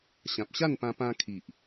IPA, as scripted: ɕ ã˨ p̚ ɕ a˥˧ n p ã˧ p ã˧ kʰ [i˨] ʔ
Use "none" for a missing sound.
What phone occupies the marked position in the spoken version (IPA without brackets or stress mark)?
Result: i˨